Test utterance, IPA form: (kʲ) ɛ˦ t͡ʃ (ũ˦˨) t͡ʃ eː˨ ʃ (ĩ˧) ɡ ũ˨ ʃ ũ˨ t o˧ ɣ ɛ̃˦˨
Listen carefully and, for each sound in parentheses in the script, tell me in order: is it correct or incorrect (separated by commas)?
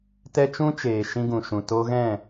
incorrect, incorrect, correct